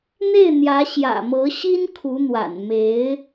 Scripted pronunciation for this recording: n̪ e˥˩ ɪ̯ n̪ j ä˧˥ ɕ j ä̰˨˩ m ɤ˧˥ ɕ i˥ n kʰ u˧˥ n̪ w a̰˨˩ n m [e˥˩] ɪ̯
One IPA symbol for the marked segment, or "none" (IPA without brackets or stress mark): e˧˥